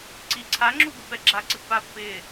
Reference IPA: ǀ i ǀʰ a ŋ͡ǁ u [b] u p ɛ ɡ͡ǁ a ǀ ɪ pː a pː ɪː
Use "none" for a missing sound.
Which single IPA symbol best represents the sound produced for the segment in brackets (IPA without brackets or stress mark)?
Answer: b